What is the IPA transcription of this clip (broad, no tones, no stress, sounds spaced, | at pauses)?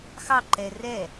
x ɑ ǃ ɛ r ɛ